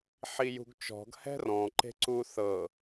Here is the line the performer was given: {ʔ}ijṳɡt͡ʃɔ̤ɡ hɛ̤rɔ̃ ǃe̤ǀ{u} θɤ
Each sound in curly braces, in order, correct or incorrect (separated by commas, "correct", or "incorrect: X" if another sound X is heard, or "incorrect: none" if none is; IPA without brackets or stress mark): incorrect: ħ, correct